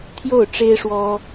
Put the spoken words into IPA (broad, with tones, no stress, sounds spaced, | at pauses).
t̪ʰ j o˥˩ ʊ̯ ʈ͡ʂ e˥ ɪ̯ ʂ w ɔ˥